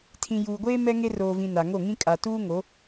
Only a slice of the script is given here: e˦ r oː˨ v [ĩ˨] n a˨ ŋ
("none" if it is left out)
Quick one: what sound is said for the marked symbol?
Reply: ĩ˨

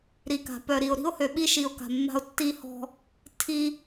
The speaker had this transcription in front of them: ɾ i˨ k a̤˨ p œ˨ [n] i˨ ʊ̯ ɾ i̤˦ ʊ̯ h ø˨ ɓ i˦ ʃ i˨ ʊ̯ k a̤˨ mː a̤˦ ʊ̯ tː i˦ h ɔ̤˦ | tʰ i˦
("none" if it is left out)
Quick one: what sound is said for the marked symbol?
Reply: ɾ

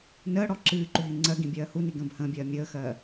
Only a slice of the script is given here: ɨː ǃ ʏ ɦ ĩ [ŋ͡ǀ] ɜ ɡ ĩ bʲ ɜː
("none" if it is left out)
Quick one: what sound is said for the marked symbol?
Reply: ŋ͡ǀ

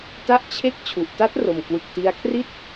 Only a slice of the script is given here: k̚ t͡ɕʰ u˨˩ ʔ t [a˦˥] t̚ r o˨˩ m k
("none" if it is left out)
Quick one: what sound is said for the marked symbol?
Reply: a˦˥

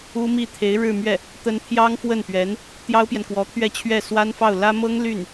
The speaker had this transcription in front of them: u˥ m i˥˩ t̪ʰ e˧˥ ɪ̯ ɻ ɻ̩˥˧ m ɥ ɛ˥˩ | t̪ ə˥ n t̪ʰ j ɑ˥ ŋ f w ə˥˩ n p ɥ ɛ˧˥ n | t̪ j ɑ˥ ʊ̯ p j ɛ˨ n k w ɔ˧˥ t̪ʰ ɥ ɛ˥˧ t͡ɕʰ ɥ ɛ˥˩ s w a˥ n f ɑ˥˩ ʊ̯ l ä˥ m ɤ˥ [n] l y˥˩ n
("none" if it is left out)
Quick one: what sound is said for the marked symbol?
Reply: ŋ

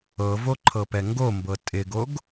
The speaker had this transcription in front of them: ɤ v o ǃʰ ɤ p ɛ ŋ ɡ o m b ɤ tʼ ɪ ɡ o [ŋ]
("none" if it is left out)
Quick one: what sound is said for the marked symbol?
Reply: ɡ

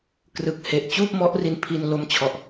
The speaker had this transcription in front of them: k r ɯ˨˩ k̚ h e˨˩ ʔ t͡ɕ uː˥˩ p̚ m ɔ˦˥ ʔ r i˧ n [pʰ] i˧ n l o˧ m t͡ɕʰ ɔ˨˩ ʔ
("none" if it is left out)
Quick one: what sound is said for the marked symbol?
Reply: pʰ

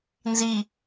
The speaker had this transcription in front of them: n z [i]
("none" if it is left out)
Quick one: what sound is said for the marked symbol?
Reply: i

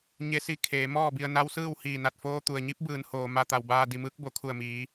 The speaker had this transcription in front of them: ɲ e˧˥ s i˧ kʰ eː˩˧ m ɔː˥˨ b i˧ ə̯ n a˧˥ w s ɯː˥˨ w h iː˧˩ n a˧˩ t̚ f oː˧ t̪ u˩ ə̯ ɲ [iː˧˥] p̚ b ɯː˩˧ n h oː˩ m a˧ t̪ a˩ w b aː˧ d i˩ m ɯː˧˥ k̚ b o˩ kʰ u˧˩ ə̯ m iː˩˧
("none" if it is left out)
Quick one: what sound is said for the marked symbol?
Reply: i˧˥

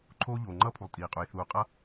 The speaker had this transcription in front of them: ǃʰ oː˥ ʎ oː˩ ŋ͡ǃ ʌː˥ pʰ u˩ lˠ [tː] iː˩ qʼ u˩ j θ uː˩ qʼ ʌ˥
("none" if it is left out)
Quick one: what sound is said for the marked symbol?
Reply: tʼ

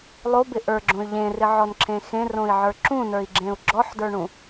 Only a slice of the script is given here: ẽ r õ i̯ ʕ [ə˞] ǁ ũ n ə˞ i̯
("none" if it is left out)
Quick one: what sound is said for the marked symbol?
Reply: ə˞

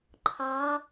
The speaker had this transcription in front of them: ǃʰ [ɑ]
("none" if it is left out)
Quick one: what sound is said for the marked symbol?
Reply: ɑ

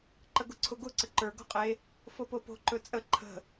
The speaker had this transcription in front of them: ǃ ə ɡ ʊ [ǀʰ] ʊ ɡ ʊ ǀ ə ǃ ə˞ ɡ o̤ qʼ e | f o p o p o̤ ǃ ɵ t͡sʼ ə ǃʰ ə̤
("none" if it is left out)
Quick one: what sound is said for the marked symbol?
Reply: ǀʰ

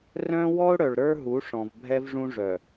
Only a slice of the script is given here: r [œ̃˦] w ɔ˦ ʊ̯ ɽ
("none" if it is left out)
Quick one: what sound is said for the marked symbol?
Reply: œ̃˦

